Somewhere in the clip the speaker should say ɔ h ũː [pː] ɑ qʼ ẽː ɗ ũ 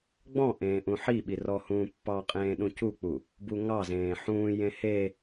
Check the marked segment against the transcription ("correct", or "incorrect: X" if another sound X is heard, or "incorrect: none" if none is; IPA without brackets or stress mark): correct